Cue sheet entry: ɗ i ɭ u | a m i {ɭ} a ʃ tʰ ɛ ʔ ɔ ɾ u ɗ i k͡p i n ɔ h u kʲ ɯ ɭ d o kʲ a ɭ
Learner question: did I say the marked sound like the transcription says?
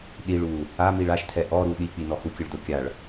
yes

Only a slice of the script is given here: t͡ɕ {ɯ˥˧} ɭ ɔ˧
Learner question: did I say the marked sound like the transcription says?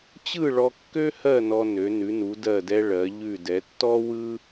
yes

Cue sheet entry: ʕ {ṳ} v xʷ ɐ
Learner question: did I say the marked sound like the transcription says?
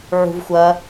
yes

